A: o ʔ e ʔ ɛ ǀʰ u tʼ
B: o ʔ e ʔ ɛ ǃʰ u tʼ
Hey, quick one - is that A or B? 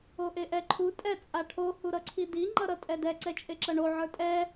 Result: B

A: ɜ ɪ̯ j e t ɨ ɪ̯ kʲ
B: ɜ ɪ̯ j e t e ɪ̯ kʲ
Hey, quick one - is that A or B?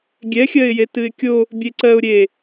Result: A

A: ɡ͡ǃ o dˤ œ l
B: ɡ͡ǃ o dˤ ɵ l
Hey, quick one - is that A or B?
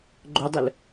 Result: B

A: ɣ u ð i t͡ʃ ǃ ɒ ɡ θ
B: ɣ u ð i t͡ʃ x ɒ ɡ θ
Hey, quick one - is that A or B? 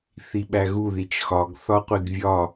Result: B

